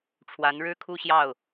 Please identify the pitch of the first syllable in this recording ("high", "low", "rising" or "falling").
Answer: rising